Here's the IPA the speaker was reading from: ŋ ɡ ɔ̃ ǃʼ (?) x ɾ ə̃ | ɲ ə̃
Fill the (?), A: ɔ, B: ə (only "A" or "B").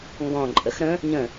B